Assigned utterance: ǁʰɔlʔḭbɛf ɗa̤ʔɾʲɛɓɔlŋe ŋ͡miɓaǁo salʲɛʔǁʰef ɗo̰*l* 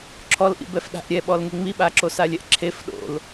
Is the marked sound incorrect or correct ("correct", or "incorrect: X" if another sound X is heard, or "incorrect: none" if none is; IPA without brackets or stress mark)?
correct